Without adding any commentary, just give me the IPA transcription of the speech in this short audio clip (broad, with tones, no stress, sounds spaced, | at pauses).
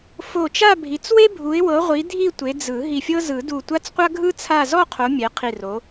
f o˧˩ t͡ʃ a˥˧ bʱ i˨˦ t͡s w e˥ bʱ u˨˦ ɪ̯ w ɤ˨˦ ʁʷ i˨˦ dʱ i˥˧ tʷ e˨˦ d͡z ɯ˨˩˦ ɦ i˧˩ fʲ ɤ˥ z ɯ˨˩˦ d u˧˩ tʷ a˥ t͡s qʷ a˥ ɡʱ ɯ˥ t͡sʰ a˥˧ z ɔ˥˧ qʰ o˨˦ mʲ ɛ˨˦ qʰ i˧˩ r o˨˦